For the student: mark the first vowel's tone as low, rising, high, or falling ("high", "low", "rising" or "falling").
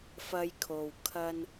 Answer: high